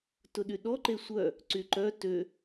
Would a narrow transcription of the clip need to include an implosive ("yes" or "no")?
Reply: yes